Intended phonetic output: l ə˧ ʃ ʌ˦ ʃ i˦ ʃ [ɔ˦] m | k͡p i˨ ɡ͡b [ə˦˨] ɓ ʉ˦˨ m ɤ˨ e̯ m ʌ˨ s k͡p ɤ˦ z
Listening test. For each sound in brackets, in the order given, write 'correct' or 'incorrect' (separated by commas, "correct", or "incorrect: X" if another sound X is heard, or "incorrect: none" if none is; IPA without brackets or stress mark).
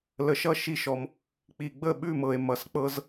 incorrect: ɔ˧, correct